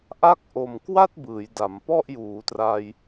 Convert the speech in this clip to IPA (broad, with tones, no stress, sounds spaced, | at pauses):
ʔ a˦˥ k̚ ʔ o˨˩ m k w a˥˩ t̚ b ɯː˩˦ j d a˩˦ m p ɔ˥˩ ʔ j uː˩˦ t r a˧ j